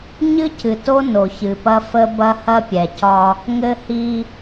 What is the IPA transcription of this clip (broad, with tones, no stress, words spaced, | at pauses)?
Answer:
ɲɨ˦cɨ˨to˦ no˨çɨ˨pɐ˦ fə˦bɐ˦hɐ˦pʲɛ˨ cɒ˦ | ŋɘ˦hi˦